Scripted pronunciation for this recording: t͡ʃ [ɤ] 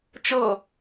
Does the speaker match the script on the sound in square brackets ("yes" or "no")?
yes